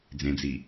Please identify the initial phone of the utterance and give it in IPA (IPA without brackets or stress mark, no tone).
d͡z